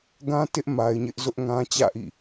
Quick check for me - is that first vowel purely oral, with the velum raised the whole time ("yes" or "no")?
no